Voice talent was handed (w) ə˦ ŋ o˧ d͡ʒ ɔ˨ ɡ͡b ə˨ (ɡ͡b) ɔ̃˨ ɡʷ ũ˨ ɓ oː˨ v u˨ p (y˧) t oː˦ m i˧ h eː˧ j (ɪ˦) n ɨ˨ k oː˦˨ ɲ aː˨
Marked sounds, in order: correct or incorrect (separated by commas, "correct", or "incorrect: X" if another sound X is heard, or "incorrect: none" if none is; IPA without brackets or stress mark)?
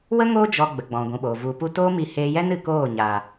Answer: correct, correct, incorrect: u˧, incorrect: ɛ˦